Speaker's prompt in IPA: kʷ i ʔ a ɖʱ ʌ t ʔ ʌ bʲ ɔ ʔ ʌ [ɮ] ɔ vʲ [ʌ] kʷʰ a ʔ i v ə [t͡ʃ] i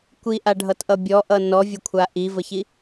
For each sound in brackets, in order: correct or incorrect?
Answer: incorrect: n, incorrect: ə, incorrect: ç

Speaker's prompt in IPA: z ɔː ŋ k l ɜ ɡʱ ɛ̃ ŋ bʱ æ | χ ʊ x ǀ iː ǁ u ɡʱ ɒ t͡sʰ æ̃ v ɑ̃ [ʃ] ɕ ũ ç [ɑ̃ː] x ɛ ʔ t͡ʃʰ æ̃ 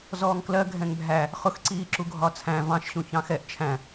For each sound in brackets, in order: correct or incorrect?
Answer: correct, incorrect: ɑ̃

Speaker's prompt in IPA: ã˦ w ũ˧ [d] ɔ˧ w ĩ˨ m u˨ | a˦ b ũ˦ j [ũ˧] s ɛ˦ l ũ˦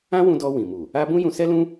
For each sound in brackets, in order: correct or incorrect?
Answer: correct, correct

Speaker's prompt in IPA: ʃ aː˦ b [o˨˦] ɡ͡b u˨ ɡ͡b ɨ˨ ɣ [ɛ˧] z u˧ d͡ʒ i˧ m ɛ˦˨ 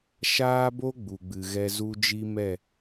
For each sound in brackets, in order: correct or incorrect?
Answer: incorrect: o˦, correct

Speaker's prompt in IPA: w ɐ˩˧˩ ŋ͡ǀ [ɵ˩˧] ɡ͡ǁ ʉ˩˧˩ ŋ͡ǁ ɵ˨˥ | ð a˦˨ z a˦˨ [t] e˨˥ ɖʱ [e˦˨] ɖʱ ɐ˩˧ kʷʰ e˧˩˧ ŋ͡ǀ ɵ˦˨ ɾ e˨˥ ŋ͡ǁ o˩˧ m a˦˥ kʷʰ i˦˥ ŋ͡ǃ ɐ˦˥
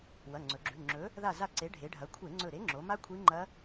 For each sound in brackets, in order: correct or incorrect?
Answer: correct, incorrect: ǀ, incorrect: e˩˧

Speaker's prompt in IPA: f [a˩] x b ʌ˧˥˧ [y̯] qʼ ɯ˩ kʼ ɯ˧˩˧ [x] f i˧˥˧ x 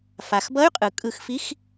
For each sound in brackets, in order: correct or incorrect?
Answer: correct, correct, correct

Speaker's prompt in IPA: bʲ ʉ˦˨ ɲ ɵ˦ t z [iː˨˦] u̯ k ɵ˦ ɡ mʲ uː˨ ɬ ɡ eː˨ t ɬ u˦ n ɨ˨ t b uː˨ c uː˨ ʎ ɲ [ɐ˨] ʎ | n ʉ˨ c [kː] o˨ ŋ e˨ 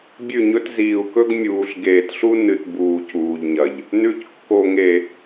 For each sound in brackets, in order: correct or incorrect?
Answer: incorrect: iː˨, correct, correct

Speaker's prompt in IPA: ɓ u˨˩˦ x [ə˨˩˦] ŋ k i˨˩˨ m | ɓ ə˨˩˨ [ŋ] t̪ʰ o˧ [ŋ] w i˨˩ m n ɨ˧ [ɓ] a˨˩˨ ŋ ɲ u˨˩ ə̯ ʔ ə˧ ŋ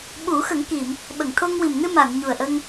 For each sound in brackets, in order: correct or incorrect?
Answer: correct, correct, correct, incorrect: m

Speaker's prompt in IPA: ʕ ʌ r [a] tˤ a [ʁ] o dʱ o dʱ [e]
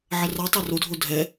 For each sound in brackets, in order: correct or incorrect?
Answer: correct, incorrect: r, incorrect: ɛ

